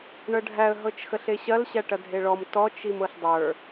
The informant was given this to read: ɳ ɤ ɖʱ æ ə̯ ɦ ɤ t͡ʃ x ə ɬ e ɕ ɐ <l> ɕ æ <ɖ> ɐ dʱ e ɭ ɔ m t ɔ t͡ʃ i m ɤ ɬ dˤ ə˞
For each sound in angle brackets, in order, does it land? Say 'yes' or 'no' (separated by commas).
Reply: yes, no